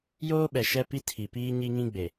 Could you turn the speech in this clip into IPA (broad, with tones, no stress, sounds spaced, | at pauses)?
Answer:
j oː˦ ɓ ɛ˨ ʃ ɛ˦ p i˦ tʰ i˨ p iː˦ ɲ i˦ ŋ ĩ˦ ɡ͡b e˨